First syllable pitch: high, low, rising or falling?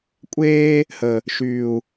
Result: high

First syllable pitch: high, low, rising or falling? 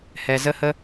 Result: low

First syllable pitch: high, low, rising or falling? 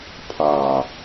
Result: low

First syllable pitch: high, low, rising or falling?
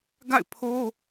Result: falling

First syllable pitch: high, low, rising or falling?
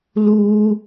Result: high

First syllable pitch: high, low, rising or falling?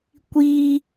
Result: high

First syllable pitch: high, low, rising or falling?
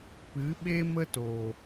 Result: rising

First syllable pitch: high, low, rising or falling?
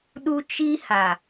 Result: high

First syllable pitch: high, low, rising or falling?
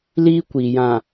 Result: high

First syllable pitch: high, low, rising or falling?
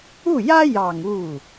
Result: falling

